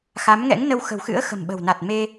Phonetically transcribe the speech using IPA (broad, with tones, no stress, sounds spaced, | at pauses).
x a˨˦ m ŋ ɛ̰˧˥ ŋ n ə˧ w x ə̤˨˩ w x ɨ̰˧˥ ə̯ x ə̤˨˩ m ɓ ə̤˨˩ w n a˨˩ t̚ m e˧